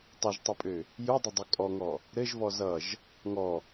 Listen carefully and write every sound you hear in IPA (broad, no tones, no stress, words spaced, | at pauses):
tˤʌʒtˤɘpʼø | judˤɘdˤu kʼɔŋɔ | ɾɘʒvɔ zʌʒ | ŋɔ